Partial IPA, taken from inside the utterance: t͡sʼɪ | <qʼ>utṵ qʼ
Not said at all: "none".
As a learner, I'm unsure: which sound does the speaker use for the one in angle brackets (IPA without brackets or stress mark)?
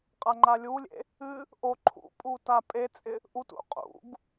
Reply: ʔ